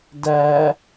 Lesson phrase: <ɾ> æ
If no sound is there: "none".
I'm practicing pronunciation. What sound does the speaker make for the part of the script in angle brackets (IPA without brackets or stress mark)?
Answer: d